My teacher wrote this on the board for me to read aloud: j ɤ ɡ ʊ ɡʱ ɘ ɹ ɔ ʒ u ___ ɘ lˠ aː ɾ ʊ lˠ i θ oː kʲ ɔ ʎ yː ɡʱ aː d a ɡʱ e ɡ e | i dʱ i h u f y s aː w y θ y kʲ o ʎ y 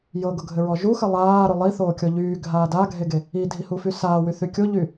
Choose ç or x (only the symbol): x